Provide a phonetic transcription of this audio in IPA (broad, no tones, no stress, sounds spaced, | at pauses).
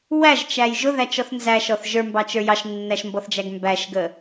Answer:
w æ ʒ t͡ʃ æ j ʒ ʊ ð æ t͡ʃ ɔ θ n z æ ʃ ɔ θ ʒ ə˞ m b ɑ t͡ʃ ə˞ j ɑ ʃ nː æ ʃ m b ɔ θ d͡ʒ æ ɡ m b æ ʃ ɡ ə